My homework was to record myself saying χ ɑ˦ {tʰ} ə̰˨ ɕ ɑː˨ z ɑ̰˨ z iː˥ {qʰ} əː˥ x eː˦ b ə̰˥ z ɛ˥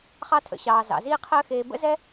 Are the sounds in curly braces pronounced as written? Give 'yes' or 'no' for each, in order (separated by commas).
yes, yes